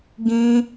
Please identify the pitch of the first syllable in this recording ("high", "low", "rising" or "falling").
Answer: high